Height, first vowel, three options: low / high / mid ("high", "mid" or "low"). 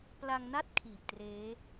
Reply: low